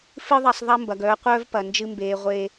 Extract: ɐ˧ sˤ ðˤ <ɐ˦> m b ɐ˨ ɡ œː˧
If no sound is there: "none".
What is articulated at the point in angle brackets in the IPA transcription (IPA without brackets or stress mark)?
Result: ɐ˦